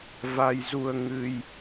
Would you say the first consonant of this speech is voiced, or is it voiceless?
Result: voiced